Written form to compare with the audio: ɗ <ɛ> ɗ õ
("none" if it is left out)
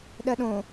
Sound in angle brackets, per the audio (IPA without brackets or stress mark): ɜ